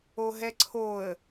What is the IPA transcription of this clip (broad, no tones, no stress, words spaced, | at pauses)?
oɦɛǀʰoə̯